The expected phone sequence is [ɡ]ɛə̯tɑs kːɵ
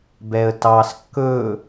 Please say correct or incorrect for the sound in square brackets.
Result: incorrect: b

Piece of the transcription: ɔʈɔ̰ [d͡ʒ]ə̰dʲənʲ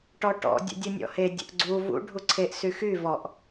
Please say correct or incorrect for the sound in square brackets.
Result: incorrect: dʲ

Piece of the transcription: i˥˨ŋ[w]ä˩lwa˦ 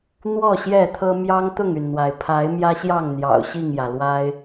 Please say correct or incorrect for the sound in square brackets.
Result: incorrect: j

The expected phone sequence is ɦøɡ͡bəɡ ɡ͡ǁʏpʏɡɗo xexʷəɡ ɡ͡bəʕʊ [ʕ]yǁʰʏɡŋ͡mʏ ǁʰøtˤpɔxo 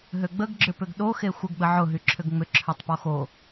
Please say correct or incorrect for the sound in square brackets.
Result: incorrect: ɦ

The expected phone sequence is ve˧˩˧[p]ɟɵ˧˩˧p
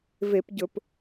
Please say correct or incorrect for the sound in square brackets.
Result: correct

